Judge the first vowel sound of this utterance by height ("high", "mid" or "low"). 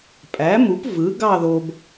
low